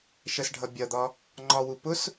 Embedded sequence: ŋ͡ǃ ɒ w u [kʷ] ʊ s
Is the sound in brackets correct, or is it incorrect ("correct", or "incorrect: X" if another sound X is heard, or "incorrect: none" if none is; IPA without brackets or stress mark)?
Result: incorrect: p